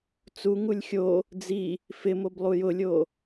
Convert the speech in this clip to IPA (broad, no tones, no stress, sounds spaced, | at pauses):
t͡s u ŋ u lʲ xʲ o | d͡z i | f ɪ m o b lˠ u j ʊ lʲ o